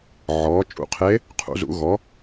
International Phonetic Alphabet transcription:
ʕ ɔː˩˥ t͡ʃʼ ṵ˧ qʰ e˧˥ | qʰ ṵ˧˥ z ṵ˧˥ ɣ ɔ˩˥

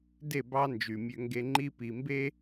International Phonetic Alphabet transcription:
d e˦˨ b ɑ˦ n d͡ʒ y˨ mʲ ø˦ ŋ ɡ e˦ ŋ͡ǃ i˦ p i˨ m b e˦

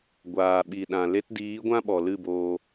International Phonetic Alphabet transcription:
ɡʷ aː˨ ɓ i˨ ɗ ã˨ l e˧ t d iː˨˦ ɡʷ ã˦ ɓ ɔ˨ l ɨ˦˨ b oː˧

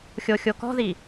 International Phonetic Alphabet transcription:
xʲ o xʲ o k ɔ̤ ð i

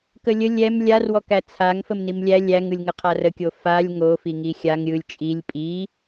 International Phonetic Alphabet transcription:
k ə lʲ ə lʲ ɛ m lʲ a r w ɔ k æ t͡sʰ a ŋ f ə m n i m lʲ æ lʲ æ ŋ ɯ lʲ ŋ ə qʰ a r ə kʲ o f a lʲ ŋ o f i ŋ i xʲ a ŋ ɾʲ ɯ lʲ t͡ʃʼ i lʲ pʼ i

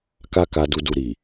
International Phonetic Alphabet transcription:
k a˦ k a˧ d u˧ d u˨ ɾ i˨

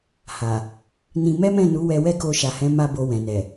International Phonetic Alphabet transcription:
h a˨ | n ĩ˧ m ɛ˦ m ɛ̃˦˨ n u˨˦ w ɛ˧ w ɛ˦ k o˧ ʃ a˨ h ɛ̃˨˦ m a˦ b o˧ w ɛ̃˨ n ɛ˨

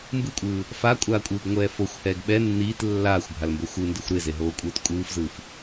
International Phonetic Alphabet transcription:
m b ɯ kʷʼ ɯː | f a kʷʼ aː kʷʼ ɯː ɡ ŋʷ ɛː f o xʷ h ɛː ɡ ɓ ɛ nː iː t lː aː xʷ bʱ a l m b o xʷ ɯ n d ɯ xʷ ɾ e z e ɦ oː kʷʼ ɯː t kʷʼ ɯː f z ɯː f

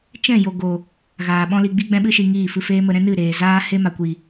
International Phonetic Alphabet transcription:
t͡ʃ ɛ̃˦˨ j o˨ ɡ o˨ | ɣ aː˨ ɓ ɔ̃˦ l i˧ ɡ͡b i˦ ɡ͡b ɛ̃˦ ɓ ɨ˦ ʃ i˧ ŋ iː˦˨ f ɨ˧ f eː˦ m ə˧ ɾ ɛ̃˦ n ɨ˦˨ ɾ eː˨ z aː˦ h e˦ m a˨ kʷ i˨

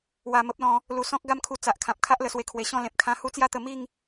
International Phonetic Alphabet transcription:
w a˧ m ə˦ p̚ l ɔ̃˧ | l u˧ s ɔ̃˦ k̚ ɡ a˦ m kʰ u˧ t͡s a˨ ʔ kʰ ã˨ p̚ kʰ a˦ ʔ l ə˨˩ s w e˧ kʰ w e˨˩ ɕ ɔ̃˥˧ l ẽ˨ p̚ kʰ ã˦ h u˦ t͡s j a˦ t̪ ə˧ m i˥˧ ŋ

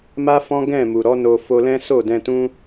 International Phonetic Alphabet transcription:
m a˦ f ɔ̃˦ ɡ ɛ̃˦˨ m u˨ ɾ ɔ˨˦ n o˧ f o˧ l ɛ̃˦ s o˦˨ d ɛ̃˧ t ũ˦

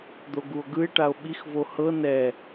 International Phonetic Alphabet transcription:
d̪ o ɡ u o̯ ɡ ɯ e̯ ʈ a o̯ ɓ i x v o h ɤ n ɛ

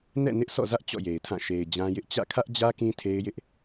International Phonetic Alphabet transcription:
n ɛ̰˦˨ n ɪ˦ ʔ sʰ ɔ̰˦˨ z ä˦ ʔ t͡ɕ ɔ̰˦˨ j e˨ ɪ̯ tʰ ã˦˨ ʃ e˨ ɪ̯ d͡ʑ ã˦ j ɪ˦ ʔ t͡ɕ ä̰˦˨ kʰ ä˦ ʔ d͡ʑ ä˦ k ĩ˦ tʰ e˦ ɪ̯ j ɪ˦ ʔ

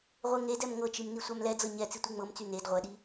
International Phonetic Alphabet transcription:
ʁʷ e ŋ e d ɛ m ŋ ɤ t͡ʃ i m n i sʷ æ m l ɛ d͡z ɤ ɲ ɛ t͡s i tʷ i ŋ͡m ɤ m t͡s y n e d ʁʷ ɛ ɗ i

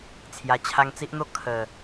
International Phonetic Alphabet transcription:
t͡sʰ j a˨˩ t͡ɕʰ a˧ ŋ t͡s i˦ ʔ n̪ o˦ kʰ ə˨˩

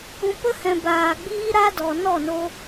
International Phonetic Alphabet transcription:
ũ˨ p ə˧ h ɛ̃˨ b aː˨ ɡ͡b iː˦ ɾ a˦ d ɔ˨ n ɔ˦˨ n o˧

